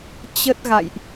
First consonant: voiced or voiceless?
voiceless